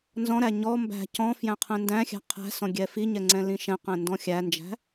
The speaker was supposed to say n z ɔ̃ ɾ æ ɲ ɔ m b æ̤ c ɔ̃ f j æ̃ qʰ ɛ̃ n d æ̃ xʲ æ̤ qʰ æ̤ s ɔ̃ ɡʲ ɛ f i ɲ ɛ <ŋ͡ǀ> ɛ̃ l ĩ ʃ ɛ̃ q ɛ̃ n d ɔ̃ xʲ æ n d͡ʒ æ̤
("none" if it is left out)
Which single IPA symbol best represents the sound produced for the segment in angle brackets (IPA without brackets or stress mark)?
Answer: ŋ͡ǀ